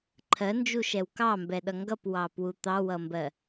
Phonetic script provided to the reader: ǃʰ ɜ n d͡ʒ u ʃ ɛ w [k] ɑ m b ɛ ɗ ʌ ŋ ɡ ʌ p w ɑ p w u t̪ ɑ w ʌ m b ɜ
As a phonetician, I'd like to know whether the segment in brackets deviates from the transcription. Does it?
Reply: no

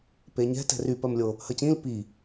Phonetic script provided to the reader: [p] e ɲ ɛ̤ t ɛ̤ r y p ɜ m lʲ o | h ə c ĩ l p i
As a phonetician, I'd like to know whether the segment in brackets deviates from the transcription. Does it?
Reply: no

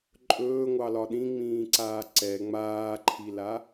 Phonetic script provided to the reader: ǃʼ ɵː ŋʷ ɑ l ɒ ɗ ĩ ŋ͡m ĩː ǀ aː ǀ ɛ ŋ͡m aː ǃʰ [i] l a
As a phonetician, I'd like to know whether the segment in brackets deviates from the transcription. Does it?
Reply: no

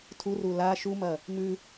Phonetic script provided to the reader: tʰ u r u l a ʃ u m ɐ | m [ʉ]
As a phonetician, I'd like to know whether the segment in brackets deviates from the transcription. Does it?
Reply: no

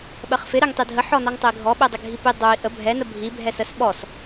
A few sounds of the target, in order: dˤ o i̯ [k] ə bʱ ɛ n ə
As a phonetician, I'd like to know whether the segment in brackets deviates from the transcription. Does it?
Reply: yes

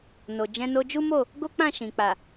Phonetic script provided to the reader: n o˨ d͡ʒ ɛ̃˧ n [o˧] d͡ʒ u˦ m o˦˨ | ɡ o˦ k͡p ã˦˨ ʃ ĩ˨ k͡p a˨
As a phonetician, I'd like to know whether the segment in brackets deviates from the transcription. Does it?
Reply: no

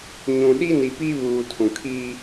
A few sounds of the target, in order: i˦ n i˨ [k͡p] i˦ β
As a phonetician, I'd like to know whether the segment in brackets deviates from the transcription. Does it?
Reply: yes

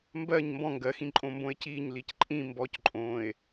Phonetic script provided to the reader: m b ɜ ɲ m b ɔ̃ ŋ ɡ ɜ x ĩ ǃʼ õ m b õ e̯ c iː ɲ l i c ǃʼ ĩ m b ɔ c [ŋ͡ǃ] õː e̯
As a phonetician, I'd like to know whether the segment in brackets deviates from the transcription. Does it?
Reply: yes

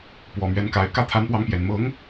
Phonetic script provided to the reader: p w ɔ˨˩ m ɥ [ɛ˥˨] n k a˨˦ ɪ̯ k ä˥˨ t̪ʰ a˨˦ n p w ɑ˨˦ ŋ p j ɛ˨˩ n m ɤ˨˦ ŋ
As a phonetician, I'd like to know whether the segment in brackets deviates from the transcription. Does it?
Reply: yes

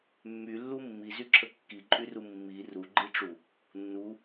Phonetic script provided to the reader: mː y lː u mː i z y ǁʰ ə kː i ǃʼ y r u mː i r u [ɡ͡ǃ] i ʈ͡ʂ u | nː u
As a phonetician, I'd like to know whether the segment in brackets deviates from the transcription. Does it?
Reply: no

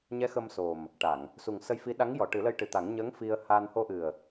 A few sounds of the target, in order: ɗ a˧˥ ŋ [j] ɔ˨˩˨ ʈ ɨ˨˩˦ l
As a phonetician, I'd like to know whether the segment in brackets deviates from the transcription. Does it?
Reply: no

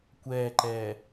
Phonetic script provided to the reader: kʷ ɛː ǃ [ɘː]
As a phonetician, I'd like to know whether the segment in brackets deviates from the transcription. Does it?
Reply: yes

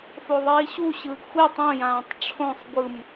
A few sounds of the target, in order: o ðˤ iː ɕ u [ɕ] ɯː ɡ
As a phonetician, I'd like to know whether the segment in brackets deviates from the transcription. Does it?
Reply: no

